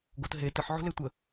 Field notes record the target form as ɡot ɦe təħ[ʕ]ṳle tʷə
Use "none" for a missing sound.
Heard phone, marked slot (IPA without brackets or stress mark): ʕ